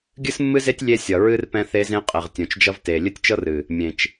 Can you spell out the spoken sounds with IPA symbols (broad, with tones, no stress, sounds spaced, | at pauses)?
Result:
ɡʲ ɨ˦ s mː ɨ˦ z e˦ tʲ lʲ e˦ sʲ ʌ˨ ɹ ɨ˦ r p ɛ̃˦ θ e˦ z ẽ˦ qʼ e˨ ʁ tʲ õ˨ t͡ʃ d͡ʒ ʌ˦ v t e˨ lʲ ɨ˦ tʲ t͡ʃ ɤ˦ r ɨ˨ | mʲ ẽ˨ t͡ʃ